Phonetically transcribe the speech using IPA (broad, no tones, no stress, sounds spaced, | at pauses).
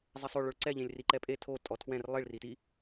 zˤ e sˤ o ɭ o ɭ ǀ ɛ ʎ ẽ lʲ r i ǃ ɛ pʼ e tʰ o tʼ ɔ tʰ w ɛ̃ r lˠ i ɭ r i t i